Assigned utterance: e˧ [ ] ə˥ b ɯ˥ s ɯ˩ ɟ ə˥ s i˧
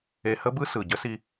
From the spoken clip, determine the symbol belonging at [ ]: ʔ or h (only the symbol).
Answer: h